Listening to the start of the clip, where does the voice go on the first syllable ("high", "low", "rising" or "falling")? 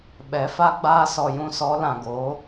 rising